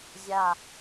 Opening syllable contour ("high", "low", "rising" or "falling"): low